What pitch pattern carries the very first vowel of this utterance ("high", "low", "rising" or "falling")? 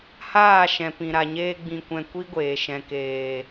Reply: falling